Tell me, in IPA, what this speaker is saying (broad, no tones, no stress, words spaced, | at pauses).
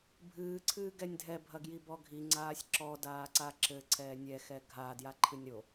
bʱɨːǀʰɨː ɡɛnʲdʱɛbʱɐɡji bɔɡʱiŋ͡ǀaːsʲ ǁɔdaːǀa ǁɘ ǀʰɛːnʲɛxɛ ɡʱa djaǃʰɨnʲɾo